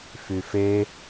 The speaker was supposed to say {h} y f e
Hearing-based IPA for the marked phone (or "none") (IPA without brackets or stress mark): f